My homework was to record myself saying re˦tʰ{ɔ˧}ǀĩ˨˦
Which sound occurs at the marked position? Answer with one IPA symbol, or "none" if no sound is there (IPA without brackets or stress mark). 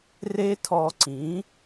ɔ˧